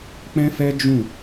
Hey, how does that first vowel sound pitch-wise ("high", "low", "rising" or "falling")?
high